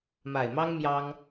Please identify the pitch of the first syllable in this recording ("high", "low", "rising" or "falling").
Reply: low